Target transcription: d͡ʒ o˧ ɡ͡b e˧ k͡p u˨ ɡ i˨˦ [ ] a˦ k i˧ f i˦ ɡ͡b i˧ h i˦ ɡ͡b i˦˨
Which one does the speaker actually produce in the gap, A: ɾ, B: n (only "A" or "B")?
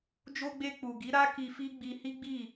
A